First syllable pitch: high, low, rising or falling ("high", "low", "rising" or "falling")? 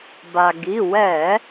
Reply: low